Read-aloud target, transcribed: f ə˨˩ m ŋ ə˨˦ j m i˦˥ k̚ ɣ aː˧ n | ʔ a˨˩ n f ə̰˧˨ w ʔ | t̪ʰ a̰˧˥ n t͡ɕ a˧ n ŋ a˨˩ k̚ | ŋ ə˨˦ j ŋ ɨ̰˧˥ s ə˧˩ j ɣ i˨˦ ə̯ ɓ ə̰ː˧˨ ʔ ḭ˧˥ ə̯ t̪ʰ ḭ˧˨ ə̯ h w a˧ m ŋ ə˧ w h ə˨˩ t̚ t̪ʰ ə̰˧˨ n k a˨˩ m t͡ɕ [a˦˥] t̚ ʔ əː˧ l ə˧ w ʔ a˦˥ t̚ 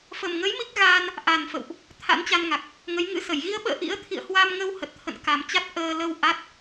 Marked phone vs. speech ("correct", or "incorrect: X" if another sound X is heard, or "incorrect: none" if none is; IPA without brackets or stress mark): correct